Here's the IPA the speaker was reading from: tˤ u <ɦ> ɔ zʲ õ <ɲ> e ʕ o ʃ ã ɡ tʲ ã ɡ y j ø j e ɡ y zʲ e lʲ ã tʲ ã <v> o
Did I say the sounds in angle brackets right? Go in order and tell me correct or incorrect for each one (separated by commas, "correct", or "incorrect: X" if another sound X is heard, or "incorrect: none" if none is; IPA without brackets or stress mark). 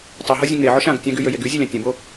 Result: correct, incorrect: ŋ, incorrect: b